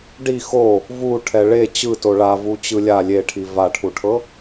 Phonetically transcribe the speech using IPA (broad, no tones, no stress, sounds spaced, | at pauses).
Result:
ɖ i x o | v u ʈʰ ɛ ɭ e t͡ɕ ɯ t o ɭ a v u t͡ɕ ɯ lʲ a lʲ e ʈʰ i v a ʈʰ u ʈʰ ɤ